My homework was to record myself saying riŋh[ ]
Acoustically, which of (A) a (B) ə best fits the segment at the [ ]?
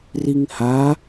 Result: A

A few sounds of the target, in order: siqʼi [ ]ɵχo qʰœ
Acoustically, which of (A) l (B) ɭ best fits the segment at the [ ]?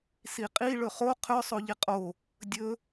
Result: B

